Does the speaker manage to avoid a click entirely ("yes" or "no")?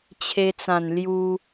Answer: yes